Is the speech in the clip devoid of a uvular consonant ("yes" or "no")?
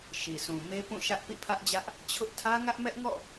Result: yes